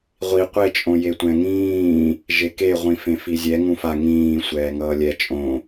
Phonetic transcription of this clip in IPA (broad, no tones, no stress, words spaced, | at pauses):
ʁʷi qʷet͡ʃʼõ jetʷɛ̃ŋĩː | ʒekeʁʷĩ fẽfizʲɛ ŋũfa ŋĩː sʷɛːŋʌːlʲɛ t͡ʃʼõ